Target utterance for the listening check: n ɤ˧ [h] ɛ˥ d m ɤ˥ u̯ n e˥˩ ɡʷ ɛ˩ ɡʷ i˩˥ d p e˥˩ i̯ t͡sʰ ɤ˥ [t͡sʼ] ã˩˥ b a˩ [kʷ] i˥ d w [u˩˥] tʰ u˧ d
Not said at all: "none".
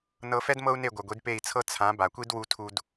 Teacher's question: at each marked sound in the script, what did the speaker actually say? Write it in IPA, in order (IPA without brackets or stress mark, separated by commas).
f, t͡sʰ, kʷ, u˧